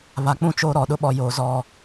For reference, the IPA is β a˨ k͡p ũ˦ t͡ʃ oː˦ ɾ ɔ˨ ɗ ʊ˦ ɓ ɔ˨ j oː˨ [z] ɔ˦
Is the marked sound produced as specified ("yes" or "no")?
yes